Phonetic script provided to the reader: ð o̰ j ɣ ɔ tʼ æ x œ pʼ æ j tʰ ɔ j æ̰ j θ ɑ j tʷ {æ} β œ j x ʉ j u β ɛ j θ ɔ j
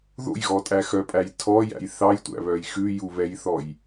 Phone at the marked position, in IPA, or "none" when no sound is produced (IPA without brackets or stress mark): æ̰